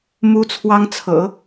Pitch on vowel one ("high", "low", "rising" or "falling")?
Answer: high